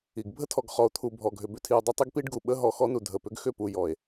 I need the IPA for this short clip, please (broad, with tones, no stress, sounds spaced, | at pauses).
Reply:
i˨ ɡ bʱ ə˦ tʰ ɔ˨ ɡ χ ɔ˨ o̯ t̪ʰ u˨ bʱ ɔ˨ ɡʱ ʏ˨ b ʏ˨ tʰ i˨ o̯ dˤ ʏ˦ tˤ i˦ ɡ p i˦ ɖ ɡ u˨ ɓ ə˦ ɦ ɔ˨ x ɔ˦ n u˨ dʱ ə˨ p ʏ˦ ɡ x ʏ˦˨ p u˨ j ɔ˨ e̯